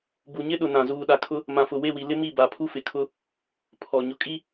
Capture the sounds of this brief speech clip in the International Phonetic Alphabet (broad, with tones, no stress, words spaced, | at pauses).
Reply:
bu˨ɲɪ˦ɗʊ˨nã˨ zuː˨ɗa˨kʰʊ˦ | mã˨fʊ˨we˦˨wi˨ lɪ˦mi˦˨ ba˨pʰu˦fɪ˨kʰʊ˦ | pʰɔ˨ ɲʊ˨kʼi˦